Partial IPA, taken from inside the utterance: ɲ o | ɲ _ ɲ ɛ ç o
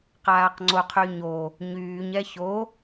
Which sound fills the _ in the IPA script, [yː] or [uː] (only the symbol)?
yː